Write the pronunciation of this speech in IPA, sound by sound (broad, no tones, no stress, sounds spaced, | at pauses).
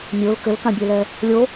mʲ o l k ɘ l k ã bʲ e l ɛ | lʲ o